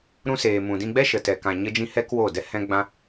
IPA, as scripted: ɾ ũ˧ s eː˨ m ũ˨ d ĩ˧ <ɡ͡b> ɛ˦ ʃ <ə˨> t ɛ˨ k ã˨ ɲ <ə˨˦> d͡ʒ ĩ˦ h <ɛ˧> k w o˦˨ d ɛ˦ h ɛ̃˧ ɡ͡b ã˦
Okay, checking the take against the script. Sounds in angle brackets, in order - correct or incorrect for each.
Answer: correct, correct, incorrect, incorrect

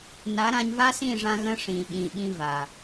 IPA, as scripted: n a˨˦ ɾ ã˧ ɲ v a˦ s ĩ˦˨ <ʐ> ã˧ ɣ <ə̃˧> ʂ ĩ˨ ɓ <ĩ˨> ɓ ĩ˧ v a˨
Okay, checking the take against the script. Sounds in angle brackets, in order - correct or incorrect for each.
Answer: correct, correct, correct

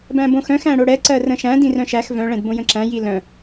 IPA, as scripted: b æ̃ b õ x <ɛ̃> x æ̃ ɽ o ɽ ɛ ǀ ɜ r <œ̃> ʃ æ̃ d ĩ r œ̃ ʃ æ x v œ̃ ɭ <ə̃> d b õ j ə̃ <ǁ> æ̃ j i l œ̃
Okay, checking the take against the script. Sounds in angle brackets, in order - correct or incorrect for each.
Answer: incorrect, incorrect, incorrect, correct

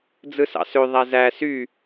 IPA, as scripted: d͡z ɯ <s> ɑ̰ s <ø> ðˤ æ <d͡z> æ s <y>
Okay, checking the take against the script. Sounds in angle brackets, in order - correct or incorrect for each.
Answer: correct, correct, incorrect, correct

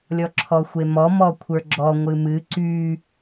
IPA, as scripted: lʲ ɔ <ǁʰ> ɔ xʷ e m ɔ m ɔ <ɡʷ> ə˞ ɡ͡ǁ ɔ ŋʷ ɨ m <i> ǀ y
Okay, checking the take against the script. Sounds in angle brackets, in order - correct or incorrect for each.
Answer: correct, incorrect, incorrect

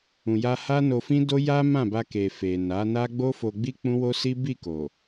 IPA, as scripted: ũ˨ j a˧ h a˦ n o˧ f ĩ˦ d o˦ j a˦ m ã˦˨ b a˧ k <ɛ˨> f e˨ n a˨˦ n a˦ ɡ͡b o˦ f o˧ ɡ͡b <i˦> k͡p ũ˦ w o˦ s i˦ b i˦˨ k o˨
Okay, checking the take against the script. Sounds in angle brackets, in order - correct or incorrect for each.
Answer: incorrect, correct

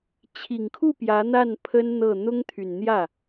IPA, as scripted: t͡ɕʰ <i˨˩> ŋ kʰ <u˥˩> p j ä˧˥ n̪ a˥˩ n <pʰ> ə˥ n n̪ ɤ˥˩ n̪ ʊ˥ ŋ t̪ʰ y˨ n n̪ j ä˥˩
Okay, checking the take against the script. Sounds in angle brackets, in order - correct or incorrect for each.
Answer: correct, correct, correct

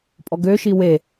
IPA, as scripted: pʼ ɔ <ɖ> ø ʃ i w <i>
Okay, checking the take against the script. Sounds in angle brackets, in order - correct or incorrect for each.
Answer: incorrect, incorrect

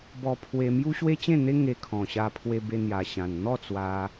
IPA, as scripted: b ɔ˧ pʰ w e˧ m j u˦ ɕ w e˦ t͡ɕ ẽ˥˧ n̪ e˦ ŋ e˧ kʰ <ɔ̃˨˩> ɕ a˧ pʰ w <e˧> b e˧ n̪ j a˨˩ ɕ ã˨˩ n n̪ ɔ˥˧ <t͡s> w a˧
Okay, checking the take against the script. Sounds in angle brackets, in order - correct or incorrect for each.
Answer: correct, correct, correct

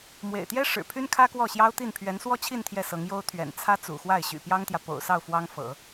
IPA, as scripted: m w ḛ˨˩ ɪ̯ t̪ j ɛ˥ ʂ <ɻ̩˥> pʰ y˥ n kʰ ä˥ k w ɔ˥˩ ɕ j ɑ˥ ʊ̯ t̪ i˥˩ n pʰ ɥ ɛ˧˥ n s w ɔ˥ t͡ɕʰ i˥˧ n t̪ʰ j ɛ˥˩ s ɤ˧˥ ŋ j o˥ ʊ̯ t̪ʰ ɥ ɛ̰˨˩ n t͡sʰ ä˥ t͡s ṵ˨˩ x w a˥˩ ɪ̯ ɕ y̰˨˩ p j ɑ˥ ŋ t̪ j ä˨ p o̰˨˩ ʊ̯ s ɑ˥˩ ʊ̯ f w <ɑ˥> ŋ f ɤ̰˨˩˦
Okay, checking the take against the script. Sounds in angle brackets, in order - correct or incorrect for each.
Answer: incorrect, correct

